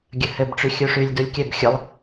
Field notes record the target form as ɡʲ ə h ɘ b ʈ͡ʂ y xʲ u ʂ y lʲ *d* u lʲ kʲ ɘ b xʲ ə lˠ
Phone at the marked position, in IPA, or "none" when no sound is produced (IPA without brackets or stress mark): d